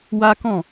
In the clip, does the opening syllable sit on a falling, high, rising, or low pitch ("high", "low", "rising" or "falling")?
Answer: high